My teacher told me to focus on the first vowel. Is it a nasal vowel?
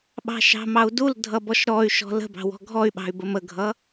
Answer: no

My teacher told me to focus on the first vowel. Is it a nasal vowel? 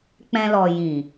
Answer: yes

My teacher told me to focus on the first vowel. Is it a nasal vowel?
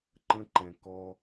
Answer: yes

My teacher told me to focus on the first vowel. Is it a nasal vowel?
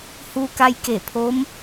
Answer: no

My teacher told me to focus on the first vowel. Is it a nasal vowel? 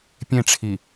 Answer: yes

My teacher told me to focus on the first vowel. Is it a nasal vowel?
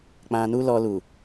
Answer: yes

